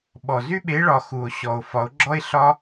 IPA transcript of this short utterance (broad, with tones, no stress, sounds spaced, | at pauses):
ɓ ɔ˨˩ z y˦ ɓ e˨˦ ɭ ɒ˨˩ x u˨˩ o̯ ɕ ɔ˨˩ o̯ f ɒ˨˦ o̯ ɡ͡ǁ ɔ˦ e̯ ɬ ɒ˦